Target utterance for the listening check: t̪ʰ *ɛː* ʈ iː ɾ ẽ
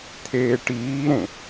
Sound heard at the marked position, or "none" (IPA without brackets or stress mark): eː